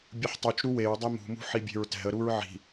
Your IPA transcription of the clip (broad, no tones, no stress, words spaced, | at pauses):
bʲɯħtˤut͡ʃɾu weɹdˤɛ mṳmṳ ħibʲe̤ɹtɛ̤ə̯ɾuɹ ʕi̤